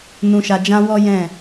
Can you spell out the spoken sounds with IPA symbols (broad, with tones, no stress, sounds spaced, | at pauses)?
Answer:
n ũ˨ ʃ a˨ d͡ʒ ã˧ w ɔ˦ j ɛ̃˦˨